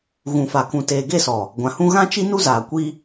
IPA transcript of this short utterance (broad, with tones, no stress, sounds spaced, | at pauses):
ɣ ũ˨ f a˨ k ũ˨ t eː˨ ɡ e˦˨ s ɔ˨ | ɡʷ ã˨ h ũ˦ ɣ ã˦ t͡ʃ i˦ n u˦ z aː˨ kʷ i˦